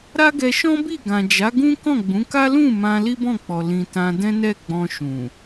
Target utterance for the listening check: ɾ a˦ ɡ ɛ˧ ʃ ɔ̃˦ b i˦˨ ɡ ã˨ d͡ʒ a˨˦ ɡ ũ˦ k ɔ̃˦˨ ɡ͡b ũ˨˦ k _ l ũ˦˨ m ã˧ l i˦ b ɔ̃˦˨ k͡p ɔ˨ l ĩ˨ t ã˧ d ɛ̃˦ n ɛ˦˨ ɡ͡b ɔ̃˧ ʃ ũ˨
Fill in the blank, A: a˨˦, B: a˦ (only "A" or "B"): B